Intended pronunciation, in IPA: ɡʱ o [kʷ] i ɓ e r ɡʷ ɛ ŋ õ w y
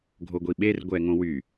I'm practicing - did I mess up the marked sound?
yes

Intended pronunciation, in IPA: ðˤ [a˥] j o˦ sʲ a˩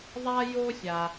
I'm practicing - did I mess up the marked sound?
no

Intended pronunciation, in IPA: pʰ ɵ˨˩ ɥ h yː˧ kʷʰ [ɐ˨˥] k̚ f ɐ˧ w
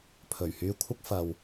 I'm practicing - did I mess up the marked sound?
yes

